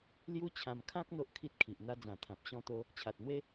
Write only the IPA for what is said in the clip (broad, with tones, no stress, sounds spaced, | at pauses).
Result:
l j u˦ t͡ɕʰ ã˧ m kʰ ã˦ k̚ n̪ o˦ ʔ kʰ i˦ t̚ kʰ i˨ ʔ n̪ a˧ d͡z ã˨˩ t̪ʰ ã˨ p̚ ɕ ɔ̃˦ t̪ o˦ | t͡ɕʰ a˨ t̚ n̪ w e˦